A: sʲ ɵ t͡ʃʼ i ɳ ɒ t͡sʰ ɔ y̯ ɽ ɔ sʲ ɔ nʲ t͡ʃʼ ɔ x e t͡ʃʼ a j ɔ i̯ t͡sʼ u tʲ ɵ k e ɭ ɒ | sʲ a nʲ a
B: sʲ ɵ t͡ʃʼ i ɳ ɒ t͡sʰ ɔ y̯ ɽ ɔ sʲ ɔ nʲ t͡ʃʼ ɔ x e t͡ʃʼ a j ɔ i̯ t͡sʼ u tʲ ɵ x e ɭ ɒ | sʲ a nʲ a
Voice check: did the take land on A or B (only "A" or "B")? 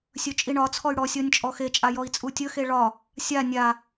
B